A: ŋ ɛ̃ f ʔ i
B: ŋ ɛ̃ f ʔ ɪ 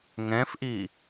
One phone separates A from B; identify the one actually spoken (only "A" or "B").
A